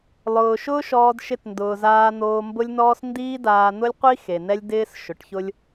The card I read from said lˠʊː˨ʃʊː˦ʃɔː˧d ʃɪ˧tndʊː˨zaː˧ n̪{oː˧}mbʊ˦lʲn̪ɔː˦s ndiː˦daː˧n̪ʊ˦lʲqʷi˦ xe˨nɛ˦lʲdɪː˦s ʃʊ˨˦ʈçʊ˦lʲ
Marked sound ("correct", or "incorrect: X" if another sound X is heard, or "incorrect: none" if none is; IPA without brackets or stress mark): correct